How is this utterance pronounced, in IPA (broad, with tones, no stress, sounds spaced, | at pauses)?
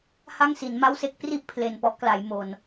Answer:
h a˥˩ ŋ s i˩˦ n m a˥˩ w s e˥˩ k̚ p r i˥˩ ʔ pʰ l e˨˩ n p ɔ˦˥ ʔ k l a˩˦ j m o˨˩ n